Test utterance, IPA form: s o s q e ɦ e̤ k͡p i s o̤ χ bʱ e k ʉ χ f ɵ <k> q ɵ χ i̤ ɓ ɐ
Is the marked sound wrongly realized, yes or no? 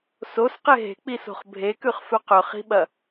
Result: yes